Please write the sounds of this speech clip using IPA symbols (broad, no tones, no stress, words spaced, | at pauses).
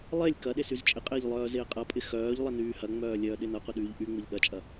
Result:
lˠelʲ kɐɗes yzt͡ʃʼɪqʼɪːʎ lˠœːzɪːqʼɐpʼɪ xœːʎ lˠɪnyːhɐŋ͡mœː lʲœːɗɪnɐqʷɪ ɗyːʎʔyŋ͡mɪʎ ɗɐt͡ʃʼɐ